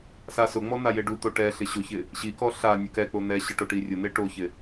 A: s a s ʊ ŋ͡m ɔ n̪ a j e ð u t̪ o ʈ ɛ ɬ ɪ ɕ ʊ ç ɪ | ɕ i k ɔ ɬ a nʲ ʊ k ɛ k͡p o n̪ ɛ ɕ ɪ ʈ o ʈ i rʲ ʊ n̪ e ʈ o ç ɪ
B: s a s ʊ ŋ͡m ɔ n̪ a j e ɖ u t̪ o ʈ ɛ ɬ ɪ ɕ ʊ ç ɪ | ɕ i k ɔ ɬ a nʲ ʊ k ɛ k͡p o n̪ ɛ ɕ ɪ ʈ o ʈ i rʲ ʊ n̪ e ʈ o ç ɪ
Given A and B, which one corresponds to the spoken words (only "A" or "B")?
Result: B